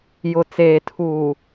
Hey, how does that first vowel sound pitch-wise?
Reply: low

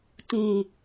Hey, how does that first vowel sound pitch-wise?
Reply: low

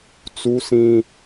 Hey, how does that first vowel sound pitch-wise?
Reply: high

